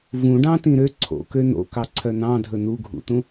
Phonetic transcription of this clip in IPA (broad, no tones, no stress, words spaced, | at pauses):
vũɖɑ̃ tĩɾø ǀʰo̰ køno̰kɑǀʰœ nɑ̃dʱɵ nuɡʱṵtũ